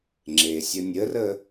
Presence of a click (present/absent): present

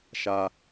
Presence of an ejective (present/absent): absent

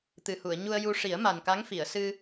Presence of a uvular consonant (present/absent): absent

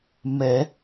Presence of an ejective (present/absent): absent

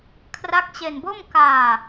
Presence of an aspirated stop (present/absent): present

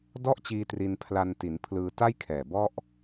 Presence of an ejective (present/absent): absent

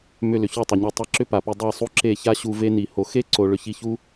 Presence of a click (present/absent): present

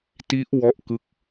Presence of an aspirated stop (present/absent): absent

